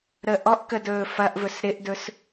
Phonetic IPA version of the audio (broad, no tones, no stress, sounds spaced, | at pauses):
ɾ ə ʔ ɔ ʔ k ə d ɵː f ɐ ʔ v ɵ s ɾ ɪ ʔ d ɵ s